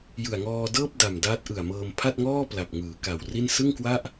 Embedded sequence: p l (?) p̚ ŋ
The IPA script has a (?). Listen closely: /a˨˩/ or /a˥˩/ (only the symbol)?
a˨˩